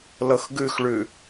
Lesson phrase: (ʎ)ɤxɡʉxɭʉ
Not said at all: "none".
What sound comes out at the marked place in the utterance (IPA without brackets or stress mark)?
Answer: l